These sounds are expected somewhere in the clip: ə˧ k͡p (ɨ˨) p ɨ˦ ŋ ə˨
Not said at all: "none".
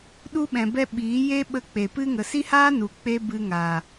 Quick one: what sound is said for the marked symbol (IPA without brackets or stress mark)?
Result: e˨